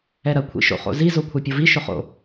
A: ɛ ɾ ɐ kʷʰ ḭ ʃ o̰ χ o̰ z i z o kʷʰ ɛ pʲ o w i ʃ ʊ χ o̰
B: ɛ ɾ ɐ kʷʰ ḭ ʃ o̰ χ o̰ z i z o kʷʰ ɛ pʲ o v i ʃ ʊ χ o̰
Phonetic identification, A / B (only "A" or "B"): B